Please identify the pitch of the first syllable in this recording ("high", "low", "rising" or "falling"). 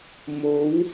rising